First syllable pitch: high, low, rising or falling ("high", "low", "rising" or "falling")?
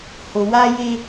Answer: low